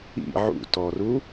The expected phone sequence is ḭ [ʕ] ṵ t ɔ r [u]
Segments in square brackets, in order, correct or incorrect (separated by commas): correct, correct